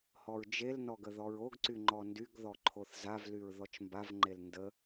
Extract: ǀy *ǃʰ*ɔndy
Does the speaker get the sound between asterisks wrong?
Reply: yes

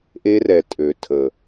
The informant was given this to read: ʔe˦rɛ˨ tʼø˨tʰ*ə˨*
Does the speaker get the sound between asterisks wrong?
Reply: no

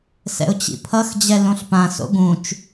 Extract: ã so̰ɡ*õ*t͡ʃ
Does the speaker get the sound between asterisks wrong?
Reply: yes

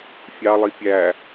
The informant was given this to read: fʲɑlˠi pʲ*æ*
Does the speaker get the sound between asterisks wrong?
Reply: no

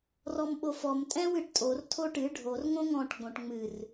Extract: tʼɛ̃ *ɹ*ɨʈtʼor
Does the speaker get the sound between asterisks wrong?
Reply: yes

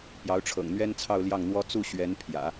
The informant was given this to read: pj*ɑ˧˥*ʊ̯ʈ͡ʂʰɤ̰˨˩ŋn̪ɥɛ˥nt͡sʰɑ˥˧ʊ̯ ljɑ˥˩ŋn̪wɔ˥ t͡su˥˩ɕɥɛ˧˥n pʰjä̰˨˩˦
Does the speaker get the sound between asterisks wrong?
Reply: no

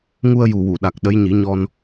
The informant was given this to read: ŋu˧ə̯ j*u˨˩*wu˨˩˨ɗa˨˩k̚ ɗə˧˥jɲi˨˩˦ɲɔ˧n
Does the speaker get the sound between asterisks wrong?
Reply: no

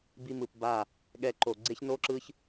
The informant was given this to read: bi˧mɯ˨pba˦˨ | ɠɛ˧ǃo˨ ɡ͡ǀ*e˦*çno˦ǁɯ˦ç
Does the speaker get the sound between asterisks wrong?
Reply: no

